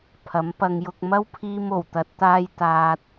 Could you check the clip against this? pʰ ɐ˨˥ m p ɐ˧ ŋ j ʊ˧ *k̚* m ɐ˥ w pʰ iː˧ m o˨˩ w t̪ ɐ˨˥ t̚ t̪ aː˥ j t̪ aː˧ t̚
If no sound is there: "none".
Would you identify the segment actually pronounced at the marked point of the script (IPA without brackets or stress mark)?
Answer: k̚